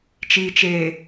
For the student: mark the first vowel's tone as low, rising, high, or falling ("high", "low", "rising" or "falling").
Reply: low